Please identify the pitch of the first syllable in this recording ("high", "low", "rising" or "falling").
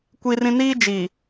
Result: high